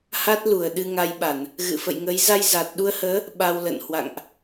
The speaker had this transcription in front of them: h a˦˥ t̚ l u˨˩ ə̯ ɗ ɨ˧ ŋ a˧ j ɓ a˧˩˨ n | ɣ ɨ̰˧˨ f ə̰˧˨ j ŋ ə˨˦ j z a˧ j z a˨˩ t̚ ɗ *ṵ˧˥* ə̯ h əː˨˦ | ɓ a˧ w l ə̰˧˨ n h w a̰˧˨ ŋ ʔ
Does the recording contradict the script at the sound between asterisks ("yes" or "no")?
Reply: yes